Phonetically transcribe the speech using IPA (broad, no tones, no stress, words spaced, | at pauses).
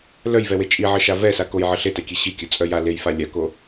lœjvɛwe t͡ʃʼiʕəʃa vɛsa kojʕə ɬetɛkʲe ɕikʲœt͡sʼœ ja lejfa lʲako